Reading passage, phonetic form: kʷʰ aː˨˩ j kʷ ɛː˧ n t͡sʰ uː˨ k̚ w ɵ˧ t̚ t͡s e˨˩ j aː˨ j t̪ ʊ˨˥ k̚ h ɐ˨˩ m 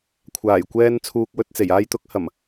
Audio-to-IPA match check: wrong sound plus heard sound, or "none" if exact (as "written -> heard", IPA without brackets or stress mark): none